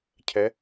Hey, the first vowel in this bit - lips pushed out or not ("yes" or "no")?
no